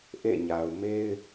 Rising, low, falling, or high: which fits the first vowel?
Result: falling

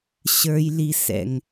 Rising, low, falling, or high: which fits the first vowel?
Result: high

